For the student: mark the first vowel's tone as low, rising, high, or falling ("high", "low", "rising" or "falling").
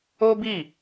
high